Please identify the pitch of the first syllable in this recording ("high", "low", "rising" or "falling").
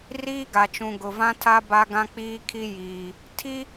high